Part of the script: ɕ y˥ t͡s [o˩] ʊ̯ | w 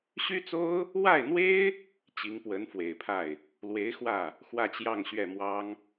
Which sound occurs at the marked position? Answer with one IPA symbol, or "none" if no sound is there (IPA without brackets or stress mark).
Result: o˥